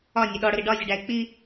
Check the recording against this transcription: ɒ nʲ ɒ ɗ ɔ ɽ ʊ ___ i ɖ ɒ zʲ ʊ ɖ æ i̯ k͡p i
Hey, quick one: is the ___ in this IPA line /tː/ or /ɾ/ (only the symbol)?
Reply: ɾ